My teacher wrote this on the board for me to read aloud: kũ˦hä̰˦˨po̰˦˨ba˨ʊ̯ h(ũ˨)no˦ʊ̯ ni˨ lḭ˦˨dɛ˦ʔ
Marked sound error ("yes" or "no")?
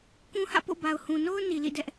no